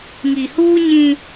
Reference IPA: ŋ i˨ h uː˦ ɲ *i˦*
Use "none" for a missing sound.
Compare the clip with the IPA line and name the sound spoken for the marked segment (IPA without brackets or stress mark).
ĩ˦